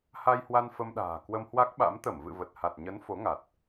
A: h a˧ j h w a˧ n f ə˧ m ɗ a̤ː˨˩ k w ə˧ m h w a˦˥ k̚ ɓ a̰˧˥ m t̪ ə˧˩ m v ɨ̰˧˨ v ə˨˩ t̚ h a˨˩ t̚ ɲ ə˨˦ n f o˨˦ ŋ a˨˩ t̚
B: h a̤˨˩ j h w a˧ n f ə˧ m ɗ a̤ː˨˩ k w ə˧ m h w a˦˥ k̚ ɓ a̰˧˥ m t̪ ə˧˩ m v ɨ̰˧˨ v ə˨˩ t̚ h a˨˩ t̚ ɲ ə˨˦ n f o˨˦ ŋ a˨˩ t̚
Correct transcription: A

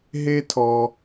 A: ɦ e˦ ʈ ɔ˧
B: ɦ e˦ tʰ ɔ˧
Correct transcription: B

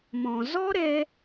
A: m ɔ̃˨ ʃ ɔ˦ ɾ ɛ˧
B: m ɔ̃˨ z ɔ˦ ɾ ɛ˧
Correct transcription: B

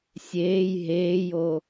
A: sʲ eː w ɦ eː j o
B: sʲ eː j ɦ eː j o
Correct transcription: B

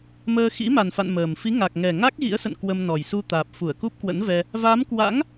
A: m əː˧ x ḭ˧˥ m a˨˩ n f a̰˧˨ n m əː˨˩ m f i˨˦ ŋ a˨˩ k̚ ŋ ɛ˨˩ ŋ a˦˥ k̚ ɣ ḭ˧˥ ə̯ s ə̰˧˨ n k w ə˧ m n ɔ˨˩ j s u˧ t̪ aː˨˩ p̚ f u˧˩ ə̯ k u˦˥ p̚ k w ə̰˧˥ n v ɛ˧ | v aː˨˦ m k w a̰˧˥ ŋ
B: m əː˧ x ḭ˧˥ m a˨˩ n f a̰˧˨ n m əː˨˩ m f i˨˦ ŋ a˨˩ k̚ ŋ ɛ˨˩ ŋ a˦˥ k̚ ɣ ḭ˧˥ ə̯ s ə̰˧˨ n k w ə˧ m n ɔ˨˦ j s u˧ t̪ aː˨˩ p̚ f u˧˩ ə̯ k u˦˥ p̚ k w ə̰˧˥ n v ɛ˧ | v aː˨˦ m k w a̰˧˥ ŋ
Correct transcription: A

